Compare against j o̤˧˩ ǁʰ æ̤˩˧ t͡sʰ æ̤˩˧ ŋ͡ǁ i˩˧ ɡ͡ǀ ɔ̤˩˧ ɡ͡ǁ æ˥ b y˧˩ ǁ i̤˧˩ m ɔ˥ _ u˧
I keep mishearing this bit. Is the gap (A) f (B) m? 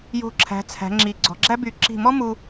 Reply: B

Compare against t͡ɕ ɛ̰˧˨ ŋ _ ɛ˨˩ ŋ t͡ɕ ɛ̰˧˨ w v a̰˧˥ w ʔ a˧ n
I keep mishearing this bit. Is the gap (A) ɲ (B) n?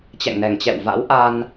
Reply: B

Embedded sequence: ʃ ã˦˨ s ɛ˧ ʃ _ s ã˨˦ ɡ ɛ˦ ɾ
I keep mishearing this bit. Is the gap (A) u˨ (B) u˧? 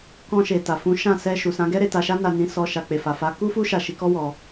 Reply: A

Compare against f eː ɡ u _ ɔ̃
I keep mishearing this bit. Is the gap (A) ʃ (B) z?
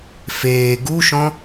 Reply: A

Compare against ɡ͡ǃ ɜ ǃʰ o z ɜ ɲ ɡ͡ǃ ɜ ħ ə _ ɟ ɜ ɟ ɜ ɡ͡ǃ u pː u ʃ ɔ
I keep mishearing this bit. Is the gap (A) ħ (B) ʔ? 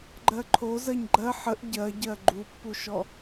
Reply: B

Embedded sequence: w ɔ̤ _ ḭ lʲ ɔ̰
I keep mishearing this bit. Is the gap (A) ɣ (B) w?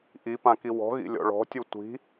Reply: A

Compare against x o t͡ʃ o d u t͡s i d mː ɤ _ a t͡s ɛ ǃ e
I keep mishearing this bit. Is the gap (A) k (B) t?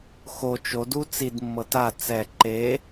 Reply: B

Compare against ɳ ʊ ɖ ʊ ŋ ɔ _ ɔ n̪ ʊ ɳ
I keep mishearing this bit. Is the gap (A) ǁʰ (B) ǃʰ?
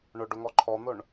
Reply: B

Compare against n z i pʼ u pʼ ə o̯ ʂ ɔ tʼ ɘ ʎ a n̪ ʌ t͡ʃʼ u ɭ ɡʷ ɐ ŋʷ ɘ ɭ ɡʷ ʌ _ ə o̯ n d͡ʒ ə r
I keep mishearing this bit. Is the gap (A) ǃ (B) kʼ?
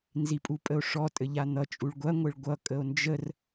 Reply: B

